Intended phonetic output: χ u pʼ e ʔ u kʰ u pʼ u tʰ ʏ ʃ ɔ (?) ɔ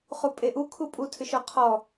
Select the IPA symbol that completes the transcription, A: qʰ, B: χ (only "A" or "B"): A